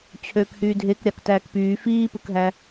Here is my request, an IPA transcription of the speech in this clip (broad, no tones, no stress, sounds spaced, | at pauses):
t͡ɕʰ øː k h yː dʱ e k ɾʲ ɑ k t æː k p yː f iː p ɯ k ɦ æ